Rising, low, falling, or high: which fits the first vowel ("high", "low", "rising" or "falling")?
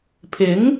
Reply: rising